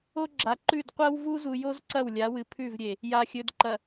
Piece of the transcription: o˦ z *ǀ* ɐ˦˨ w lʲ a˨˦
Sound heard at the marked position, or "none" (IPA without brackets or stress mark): ǀ